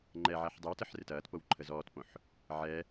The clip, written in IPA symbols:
ŋ͡ǃ ɛ ʕ a ħ dˤ ɪ w t ə ħ r ɪ t ɐː t p o w ǃʰ ə z ɔː t p õ ħ | ʕ ɛ

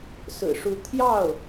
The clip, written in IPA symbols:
s ɹ̩˨˩ ʂ u˧˥ t̪ʰ j ɑ˥˩ ʊ̯

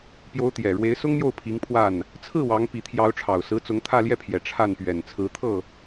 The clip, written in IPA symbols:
p j o˧˥ ʊ̯ t̪ j ɛ˨˩ ɻ w e˧˥ ɪ̯ s ʊ˥ ŋ n̪ j o˥˩ ʊ̯ pʰ i˧˥ ŋ pʰ w a˥˩ n | t͡sʰ ɹ̩˥˩ w ɑ˧˥ ŋ p i˧˥ t̪ʰ j ɑ˧˥ ʊ̯ ʈ͡ʂʰ ɑ˨˩ ʊ̯ s ɹ̩˧˥ t͡s ʊ˧˥ ŋ t̪ʰ ä˥˧ l j ɛ˥˩ pʰ j ɛ˨˩ ʈ͡ʂʰ a˥˩ n p ɥ ɛ˨˩ n t͡sʰ ɹ̩˧˥ t̪ʰ ɤ˥˩

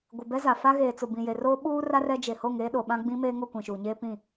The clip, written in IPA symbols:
ɡʷ ɪ˨ b ɛ˦ z a˨ f a˦ ɣ eː˨ t͡s ʊ˨ b ĩ˨ j e˨ r oː˦ ɓ uː˦ r a˦ r ɛ˦ d͡ʒ e˨ h o˦˨ ŋ eː˦ ɗ o˨ ɓ ã˦ ɡ͡b ĩ˦ m eː˦ ŋ ʊ˦˨ kʷ ĩ˨ ʃ uː˨ ɲ eː˦ p ĩ˦˨

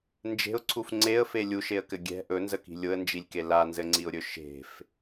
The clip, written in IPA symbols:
n d͡ʒ e̤ ʊ̯ ǀʰ u f ŋ͡ǀ e ə̯ f e lʲ u ʃ e ə̯ k ɘ ɡʲ ɛ̤ ʔ ɵ n z ə k i̤ lʲ ʊ ə̯ n d͡ʒ i lʲ k e l a n z ɘ ŋ͡ǀ i ʊ̯ ɾʲ ɵ ʃ e̤ f

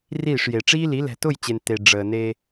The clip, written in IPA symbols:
r iː˦˨ ʂ j e˨ ʈ͡ʂ iː˦ l i˨˦ l ɛ̤˨ t ʊ˦˨ j t͡ɕ e˨ n t e˨ ɖ͡ʐ əː˨ n e˦

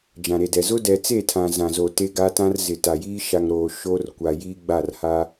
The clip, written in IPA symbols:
d͡ʒ ã˨ ɾ e˨ d ɛ˨ z ʊ˦ d ɛ˨ t͡s e˦˨ tʰ ã˨ z ã˨ z o˨ t e˦ ɡ a˦ t ã˦ r z ɪ˨ t a˨ j iː˦ ʃ a˨ ŋ ɾ oː˨ ʃ o˦ r kʷ a˨ j iː˦ ɡ͡b a˦˨ r h a˦

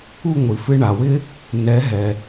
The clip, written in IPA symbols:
u˥˩ ŋʷ ɨ˩ f ɨ˧ ɳ a˩ w ɪ˥ | n ɛ˩˥ ɦ ɛ˩

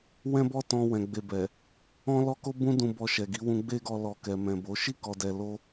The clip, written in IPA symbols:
w ɛ̃˦ b ɔ˦ t ɔ̃˧ w ɛ̃˨ ɡ͡b e˨ b ɛ˨ | ɔ̃˦ l ɔ˦ k o˦ b ũ˦ d ũ˧ b ɔ˧ ʃ ɛ˨ ɡ i˨˦ w ũ˧ ɡ͡b e˦ ɡ ɔ˧ l ɔ˨ k ɛ˨ m ɛ̃˨ b o˨˦ ʃ i˦˨ k ɔ˨ d ɛ˨ l o˧

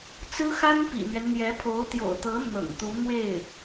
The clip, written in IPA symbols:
t͡s ɹ̩˥ x a˥ n p ḭ˨˩ n̪ ɥ ɛ˦ n n̪ j ɛ˧˥ pʰ o˧˥ ʊ̯ t̪ j o̰˨˩ ʊ̯ t̪ ɤ˧˥ n̪ ɤ̰˨˩ ŋ t̪ u˧˥ n̪ w e˥˩ ɪ̯

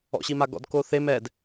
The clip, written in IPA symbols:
ɔ̰ ɕ i m a ɡ ɔ̰ d k o θ e m ɛ d

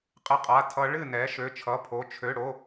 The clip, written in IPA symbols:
qʼ ɨ˦˥ qʼ a˧˥˧ tʰ ʌ˦˥ ɭ ɨ˥˨ n ɛ˨˥ ʃ ø˧˥˧ t͡ʃʰ ʌ˧˥˧ pʰ o˧˥˧ t͡ʃʰ ø˧˥˧ ɽ o˧˥˧

